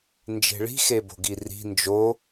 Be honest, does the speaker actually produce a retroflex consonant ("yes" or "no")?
yes